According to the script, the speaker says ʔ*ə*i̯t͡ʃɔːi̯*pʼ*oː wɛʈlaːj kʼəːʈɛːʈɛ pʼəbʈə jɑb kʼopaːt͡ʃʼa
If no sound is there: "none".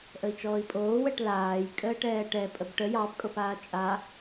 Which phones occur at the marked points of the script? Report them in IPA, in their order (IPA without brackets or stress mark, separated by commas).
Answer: ə, pʼ